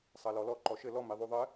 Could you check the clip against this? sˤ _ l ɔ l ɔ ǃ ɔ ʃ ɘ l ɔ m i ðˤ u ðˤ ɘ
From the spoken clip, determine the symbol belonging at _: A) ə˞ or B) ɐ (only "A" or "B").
B